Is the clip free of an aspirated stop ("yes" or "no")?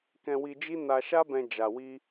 yes